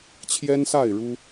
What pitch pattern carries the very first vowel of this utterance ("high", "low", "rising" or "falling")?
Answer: high